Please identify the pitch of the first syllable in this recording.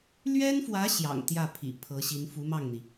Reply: high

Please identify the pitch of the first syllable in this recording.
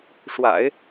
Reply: low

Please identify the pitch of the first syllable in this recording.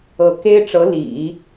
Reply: rising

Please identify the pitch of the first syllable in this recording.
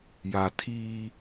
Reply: low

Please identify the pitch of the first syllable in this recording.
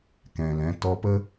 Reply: low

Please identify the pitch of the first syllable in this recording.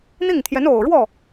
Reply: falling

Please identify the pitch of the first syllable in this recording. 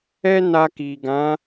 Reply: high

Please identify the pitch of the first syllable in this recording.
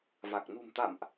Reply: low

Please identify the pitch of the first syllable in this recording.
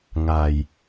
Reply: low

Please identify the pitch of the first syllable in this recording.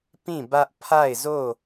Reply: falling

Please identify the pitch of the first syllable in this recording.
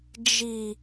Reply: low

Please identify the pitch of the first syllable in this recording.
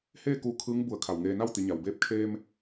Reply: falling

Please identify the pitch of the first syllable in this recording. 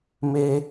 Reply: high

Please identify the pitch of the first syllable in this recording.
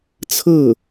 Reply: falling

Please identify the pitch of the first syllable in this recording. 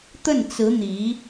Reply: falling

